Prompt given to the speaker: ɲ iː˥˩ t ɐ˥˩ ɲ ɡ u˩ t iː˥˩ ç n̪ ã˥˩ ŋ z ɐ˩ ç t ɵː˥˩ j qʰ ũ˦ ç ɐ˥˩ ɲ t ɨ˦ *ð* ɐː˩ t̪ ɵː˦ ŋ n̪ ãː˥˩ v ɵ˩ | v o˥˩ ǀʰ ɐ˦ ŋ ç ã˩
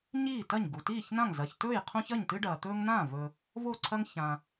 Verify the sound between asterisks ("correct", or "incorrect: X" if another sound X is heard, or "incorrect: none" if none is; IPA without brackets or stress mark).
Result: incorrect: ɖ